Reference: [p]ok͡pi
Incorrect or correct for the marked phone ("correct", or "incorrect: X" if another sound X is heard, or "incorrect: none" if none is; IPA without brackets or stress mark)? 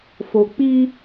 incorrect: f